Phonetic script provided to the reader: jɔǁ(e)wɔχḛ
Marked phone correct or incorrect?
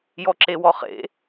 correct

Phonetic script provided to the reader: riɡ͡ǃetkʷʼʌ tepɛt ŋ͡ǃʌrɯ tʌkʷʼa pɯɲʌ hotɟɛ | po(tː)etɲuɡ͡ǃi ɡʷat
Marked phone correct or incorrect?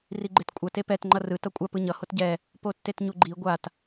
correct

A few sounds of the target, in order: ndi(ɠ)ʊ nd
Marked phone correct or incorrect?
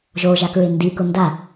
incorrect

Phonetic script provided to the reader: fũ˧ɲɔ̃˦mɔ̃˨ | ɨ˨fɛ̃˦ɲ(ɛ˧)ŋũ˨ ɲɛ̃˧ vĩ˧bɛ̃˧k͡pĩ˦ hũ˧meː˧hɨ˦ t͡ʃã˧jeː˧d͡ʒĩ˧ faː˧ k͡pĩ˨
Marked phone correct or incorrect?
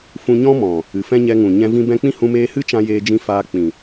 correct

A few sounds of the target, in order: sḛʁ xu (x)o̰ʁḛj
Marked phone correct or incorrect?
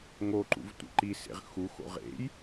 correct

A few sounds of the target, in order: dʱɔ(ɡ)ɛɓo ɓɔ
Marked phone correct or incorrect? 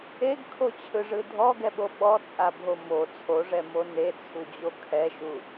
correct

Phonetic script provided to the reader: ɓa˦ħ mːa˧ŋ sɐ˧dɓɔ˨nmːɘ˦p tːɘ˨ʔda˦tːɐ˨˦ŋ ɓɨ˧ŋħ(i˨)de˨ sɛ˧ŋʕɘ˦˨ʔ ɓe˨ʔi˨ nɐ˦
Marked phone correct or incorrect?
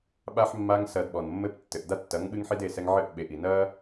incorrect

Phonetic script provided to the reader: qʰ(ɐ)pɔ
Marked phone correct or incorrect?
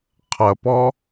correct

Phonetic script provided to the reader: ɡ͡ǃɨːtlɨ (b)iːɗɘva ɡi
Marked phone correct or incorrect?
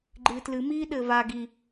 incorrect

